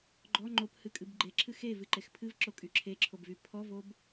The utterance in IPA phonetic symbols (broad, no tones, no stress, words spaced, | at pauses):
ɡ͡ǃɔ ŋ͡ǃophɨkʼɨb ɡ͡ǃeǁʰɨ xevɨǃex pʰɨvǁokʼy ǁʰeǁʰobvy pʰɔvob